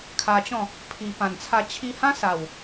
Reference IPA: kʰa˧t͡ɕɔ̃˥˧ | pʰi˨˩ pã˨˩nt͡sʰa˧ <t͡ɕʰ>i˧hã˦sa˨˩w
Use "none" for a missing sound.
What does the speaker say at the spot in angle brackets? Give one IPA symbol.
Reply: t͡ɕʰ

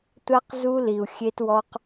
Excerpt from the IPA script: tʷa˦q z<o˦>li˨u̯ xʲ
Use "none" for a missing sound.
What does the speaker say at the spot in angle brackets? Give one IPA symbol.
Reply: u˦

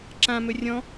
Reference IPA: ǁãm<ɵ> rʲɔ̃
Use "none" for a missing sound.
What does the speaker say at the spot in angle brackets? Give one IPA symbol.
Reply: ɵ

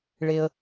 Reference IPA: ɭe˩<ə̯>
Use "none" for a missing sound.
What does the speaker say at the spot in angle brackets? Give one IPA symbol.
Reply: ə̯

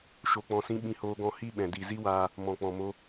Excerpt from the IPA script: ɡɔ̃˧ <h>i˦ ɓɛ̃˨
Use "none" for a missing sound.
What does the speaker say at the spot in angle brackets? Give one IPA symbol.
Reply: h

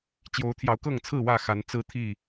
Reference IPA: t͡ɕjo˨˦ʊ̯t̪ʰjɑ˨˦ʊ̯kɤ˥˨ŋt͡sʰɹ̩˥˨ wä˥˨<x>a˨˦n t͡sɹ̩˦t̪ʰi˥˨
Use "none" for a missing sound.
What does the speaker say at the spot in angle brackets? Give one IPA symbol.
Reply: x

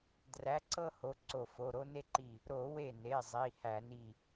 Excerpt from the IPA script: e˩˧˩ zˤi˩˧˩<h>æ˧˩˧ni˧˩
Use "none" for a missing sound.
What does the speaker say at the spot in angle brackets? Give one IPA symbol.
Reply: h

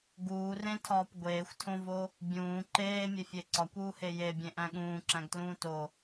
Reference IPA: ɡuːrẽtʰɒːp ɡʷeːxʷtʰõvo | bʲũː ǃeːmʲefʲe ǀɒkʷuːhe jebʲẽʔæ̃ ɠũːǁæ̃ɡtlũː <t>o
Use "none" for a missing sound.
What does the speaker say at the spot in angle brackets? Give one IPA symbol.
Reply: t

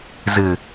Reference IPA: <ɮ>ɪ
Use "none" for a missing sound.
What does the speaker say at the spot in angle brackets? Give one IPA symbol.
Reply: z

